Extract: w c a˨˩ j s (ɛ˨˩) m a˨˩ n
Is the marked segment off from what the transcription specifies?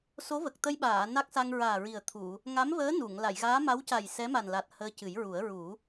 yes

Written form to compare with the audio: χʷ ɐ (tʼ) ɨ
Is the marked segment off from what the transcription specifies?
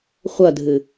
yes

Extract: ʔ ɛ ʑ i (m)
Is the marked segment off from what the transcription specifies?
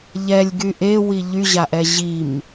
no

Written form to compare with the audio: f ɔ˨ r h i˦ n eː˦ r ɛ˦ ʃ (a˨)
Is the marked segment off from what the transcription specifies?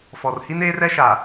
no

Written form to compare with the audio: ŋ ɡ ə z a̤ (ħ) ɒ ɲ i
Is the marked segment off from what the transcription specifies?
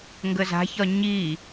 yes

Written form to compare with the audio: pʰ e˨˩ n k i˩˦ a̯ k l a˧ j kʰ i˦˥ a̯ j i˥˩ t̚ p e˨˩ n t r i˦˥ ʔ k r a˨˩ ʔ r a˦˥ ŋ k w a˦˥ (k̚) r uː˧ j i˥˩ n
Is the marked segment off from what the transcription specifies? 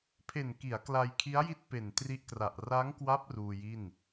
yes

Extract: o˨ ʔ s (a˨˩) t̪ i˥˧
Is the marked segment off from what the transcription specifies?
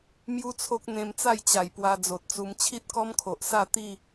yes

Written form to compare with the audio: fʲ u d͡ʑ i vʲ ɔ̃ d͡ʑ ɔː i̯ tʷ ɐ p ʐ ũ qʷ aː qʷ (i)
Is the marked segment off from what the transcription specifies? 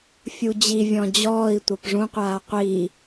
yes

